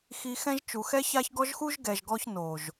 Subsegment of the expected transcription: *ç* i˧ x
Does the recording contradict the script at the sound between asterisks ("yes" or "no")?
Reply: yes